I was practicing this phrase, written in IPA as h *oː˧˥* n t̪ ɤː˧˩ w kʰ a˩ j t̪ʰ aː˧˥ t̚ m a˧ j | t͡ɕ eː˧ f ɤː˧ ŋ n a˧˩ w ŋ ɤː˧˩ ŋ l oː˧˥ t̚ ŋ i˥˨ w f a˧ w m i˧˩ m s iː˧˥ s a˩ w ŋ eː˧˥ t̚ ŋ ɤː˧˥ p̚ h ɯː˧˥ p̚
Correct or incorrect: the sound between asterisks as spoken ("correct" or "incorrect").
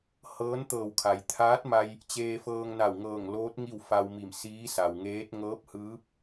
incorrect